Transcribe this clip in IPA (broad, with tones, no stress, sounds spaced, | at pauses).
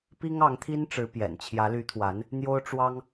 p i˥ ŋ ɑ˧˥ ŋ t̪ʰ i˥ n ʈ͡ʂ ɻ̩˧˥ p j ɛ̰˨˩ n t͡ɕʰ j ä˧˥ l y˧˥ t̪ʰ w a˧˥ n | n̪ j o˥ ʊ̯ ʈ͡ʂ w ɑ˥ ŋ